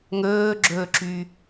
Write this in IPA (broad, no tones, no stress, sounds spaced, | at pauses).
ŋ ɵː ɡ͡ǁ ɵː ǁ y